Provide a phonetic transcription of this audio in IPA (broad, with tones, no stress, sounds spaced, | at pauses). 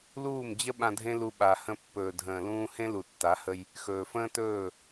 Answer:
l uː˦˨ m d͡ʑ ə˦ ɓ ã˧ dʱ ẽ˦ l u˧ ɓ a˨ h ə̃˧ pː ɵː˨ dʱ ə̃ː˨ l ũː˧ h ẽ˦ l u˨ tː a˨˦ h ə˧ j | x ɵː˨ f ə̃ː˦ t ɵː˦˨